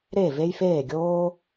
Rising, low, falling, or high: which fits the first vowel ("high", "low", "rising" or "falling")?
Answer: falling